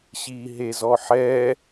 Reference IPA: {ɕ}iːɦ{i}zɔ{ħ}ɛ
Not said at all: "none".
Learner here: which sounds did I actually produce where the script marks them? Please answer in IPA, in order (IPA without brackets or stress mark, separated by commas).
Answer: ɕ, e, ħ